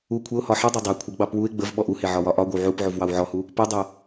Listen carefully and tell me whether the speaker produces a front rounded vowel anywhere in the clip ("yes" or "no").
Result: yes